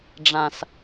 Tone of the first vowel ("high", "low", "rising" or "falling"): low